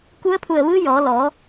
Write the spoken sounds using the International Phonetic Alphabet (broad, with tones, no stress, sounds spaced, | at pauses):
k u˧˥ ə̯ pʰ u˧˩ ə̯ ʋ ɯː˧˥ j ɔː˩˧ l ɔː˩˧